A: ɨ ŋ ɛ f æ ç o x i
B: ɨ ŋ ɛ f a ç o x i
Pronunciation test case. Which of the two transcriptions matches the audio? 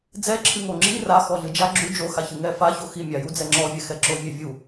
B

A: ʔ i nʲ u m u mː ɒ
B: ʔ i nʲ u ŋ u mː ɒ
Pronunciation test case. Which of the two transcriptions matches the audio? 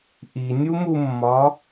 A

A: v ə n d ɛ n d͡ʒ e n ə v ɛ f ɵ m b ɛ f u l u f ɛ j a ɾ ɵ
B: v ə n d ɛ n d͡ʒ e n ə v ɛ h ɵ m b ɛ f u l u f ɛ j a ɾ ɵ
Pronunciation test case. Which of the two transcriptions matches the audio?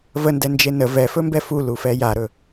A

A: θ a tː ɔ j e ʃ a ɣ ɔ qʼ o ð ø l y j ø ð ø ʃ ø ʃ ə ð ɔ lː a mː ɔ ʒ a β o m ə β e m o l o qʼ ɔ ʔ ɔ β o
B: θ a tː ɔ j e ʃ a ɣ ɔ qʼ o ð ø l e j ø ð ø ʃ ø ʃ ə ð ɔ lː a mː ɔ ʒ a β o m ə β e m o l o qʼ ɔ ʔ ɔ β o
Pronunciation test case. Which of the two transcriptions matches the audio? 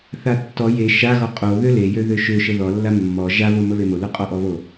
B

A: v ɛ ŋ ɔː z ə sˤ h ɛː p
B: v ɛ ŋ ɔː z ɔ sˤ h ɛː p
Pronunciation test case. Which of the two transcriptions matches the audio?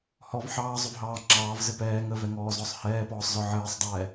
B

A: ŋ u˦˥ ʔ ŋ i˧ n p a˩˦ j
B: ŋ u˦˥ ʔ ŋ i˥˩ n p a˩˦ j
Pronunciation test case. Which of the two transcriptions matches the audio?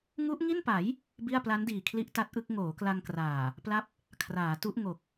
B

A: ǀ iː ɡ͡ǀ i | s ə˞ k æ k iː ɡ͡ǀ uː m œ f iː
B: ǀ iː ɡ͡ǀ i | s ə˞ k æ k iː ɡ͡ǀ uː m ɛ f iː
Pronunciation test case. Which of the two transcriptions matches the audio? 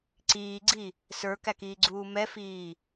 B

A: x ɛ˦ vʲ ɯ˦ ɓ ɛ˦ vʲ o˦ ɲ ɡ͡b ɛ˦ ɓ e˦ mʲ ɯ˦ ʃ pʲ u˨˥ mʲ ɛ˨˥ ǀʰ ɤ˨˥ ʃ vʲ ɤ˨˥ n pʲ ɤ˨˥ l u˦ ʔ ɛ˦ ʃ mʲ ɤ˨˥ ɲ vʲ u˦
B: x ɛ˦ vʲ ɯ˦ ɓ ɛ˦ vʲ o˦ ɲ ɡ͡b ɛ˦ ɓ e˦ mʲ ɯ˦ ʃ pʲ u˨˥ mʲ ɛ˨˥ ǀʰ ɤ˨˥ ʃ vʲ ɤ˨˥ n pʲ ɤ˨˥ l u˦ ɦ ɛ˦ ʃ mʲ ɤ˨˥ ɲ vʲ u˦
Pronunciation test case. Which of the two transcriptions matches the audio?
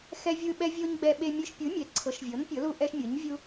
A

